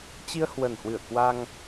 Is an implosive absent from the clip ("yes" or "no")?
yes